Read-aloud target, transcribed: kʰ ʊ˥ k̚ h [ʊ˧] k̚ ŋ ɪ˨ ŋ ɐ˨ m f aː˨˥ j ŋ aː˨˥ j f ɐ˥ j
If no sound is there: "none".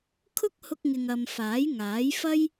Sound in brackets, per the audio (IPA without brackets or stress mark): ʊ˧